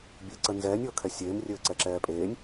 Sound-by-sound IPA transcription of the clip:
bʲ ɘː ǀ ə n z ɛː nʲ ɤː kʰ ɛ sʲ eː m rʲ ɘː ǀ ɛ ǁ ɛː pʼ eː nʲ

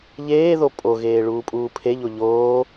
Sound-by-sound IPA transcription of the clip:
ʎ eː ð o pʼ o ɣ eː ɭ uː pʼ uː pʰ e ʎ o ʎ oː

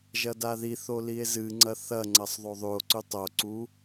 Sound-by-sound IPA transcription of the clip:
ʒ ɐ d a ð i θ o l i e̯ z ɨ ŋ͡ǀ ɐ θ ɐ ŋ͡ǀ ɐ sˤ ðˤ o ðˤ ʉ o̯ ǀ ʉ tˤ o ǀ u

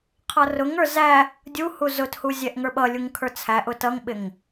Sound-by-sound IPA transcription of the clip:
qʰ ʌ r ʊ ŋ ə˞ z æ | dʲ u h u z ʊ t h u zʲ ɛ ʔ ŋ ə˞ ɓ ʌ lʲ u ŋ kʰ ə˞ t͡sʰ æ ʔ ʊ t ʌ ŋ ɓ ɪ ŋ

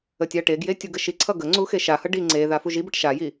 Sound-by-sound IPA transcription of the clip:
ə tʲ a ʈ e ɡ j e tʲ u ɡ ə ʃ i ǀʰ ʌ ɡ ə ŋ͡ǀ u x e ʃ a h ʌ ɖ i ŋ͡ǀ e ð a f u ʒ i b ə ʈ ʃ a j i

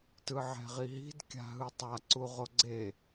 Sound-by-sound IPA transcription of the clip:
t ɯ ʕ ɛ̤ ʁ i ɦ i̤ d kʲ a̤ ɦ ɯ tˤ a ǀ u ʁ o ɡ͡ǀ e

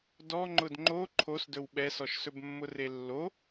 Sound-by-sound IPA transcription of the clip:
d ɔ ŋ͡ǃ ʊ d ŋ͡ǃ o ǃʰ o s d ɵ w ɓ ɛ s ɔ ʃ s ɵ b mː ʊ r e lː o

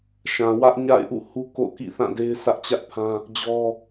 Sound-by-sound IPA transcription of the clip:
ʃ ã˨ w ä˦ ʔ ɲ a̰˦˨ ɪ̯ ʔ ṵ˦˨ h u˦ k o̰˦˨ ʊ̯ k ḭ˦˨ θ ã˦˨ d e˦ ɪ̯ sʰ ä˦ ʔ t͡ɕ ä˦ ʔ pʰ ã˦ | d͡ʑ ɔ˦

